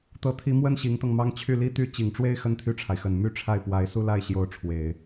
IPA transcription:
t̪ ɤ˧˥ t̪ʰ i˧˥ m w ə˥ n ɕ i˧˥ ŋ t̪ ɤ˧ ŋ m ɑ˥ ŋ t͡ɕʰ y˥˩ l i˥ t̪ y˥ t͡ɕ i˨˩ ŋ ʈ͡ʂ w e˥˧ ɪ̯ x ə˥˧ n t̪ʰ y˥˩ ʈ͡ʂʰ a˩ ɪ̯ x ə˨˩ n m y˥˧ ʈ͡ʂʰ a˥˩ ɪ̯ p w a˧˥ ɪ̯ s u˥˧ l a˥˩ ɪ̯ ɕ j o˧˥ ʊ̯ ʈ͡ʂʰ w e˨˩˦ ɪ̯

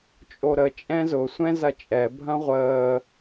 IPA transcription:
t͡ʃʼ o ɾ ə t͡ʃʼ ɛ̃ z ʊ sʷ ɛ̃ z ɐ t͡ʃʼ ɛ bʱ ɐ̃ ʁʷ əː

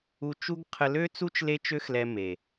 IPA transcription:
u˧ t͡ʃ u˦ ɡ qʰ ə˧ l ø˦ t͡s u˦ t͡ʃ l e˦ t͡ʃ ø˦ x l ɛ˧ m e˨

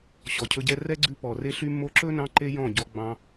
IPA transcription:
ɕ ɔ˨ cʰ ɵ˧ ɟ ɛ˦ r ɛ˦ ɡ͡ǀ ʉ˧ p ɔ˨ r e˧ ɬ y˧ mː o˧ ǁ ɵ˦ n ɑ̃˧ ǃ e˦ j ɔ̃˦˨ ɟ ɔ˧ ɡ͡b ɑ̃˧

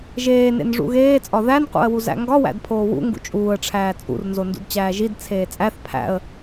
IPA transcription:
ʒ eː n ḛ n ʐ ṵ ɣ eː t͡sʼ ɒ ð æ n q ṵ ə̯ w u z æ̰ ŋ ɡ ɒ w æ̰ d pʰ oː w ṵ ŋ ɡ ṵ t͡ʃʼ uː ə̯ ʈ͡ʂʰ æː t͡sʼ ṵ r n z o n d ṵ d t͡ɕ æː ʒ i d t͡sʰ eː t͡sʼ æ θ pʰ æ̰ ə̯

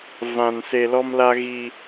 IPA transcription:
v ã˨ n s e˨ l ɔ˦ m l a˦ ɣ i˦

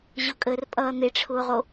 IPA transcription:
ʑ ʊ kʼ əː r pʼ ʌː n̪ e ʈ͡ʂʰ ʊː ʁ o

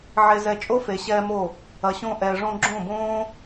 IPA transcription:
ʕ e˧ z ɛ˧ t͡ʃʼ o˦ f e˨ ɕ ɛː˧ m o˦˨ | ɐ˨ ɕ õ˧ ʔ ɛː˨ ʐ õ˧ ɡ͡ǁ õ˦˨ b õː˦

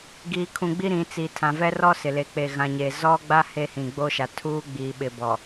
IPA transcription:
ɡ iː˦ kʰ ũ˦ ɡ͡b i˦ ɾ ĩ˨˦ t͡s i˨ tʰ ã˨ v ɛ˦ r ɔ˦ s ɪ˨ l e˨ k͡p e˨ ɣ ã˨ ɲ e˨ z ɔ˦ ɡ͡b a˦ h e˦ h ĩ˨ ɡ͡b o˦ ʃ a˨ tʰ uː˦ ɡ͡b iː˨ ɓ ɪ˨ b ɔ˨

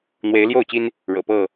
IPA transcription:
n̪ w e˨˦ ɪ̯ l j o˥˨ ʊ̯ t͡ɕ i˦ n | ɻ ɤ̰˨˩ p ɤ˥˨

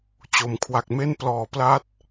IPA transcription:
t͡ɕ o˩˦ m kʰ w a˨˩ k̚ m e˥˩ n p l ɔː˨˩ p l a˦˥ t̚

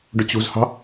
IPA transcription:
ɖ ʊ t͡ɕ ṳ z h ɑ̤

